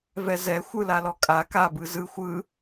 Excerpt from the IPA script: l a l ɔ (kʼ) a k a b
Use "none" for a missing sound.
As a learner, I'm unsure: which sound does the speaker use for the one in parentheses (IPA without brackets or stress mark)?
kʼ